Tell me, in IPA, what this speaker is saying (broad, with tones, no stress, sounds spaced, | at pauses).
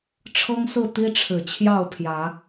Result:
ʈ͡ʂʰ ɤ˦ ŋ s ɹ̩˥˨ t̪ i˦ ʈ͡ʂʰ ɻ̩˨˩ t͡ɕʰ j ɑ˥˨ ʊ̯ pʰ j ä˨˦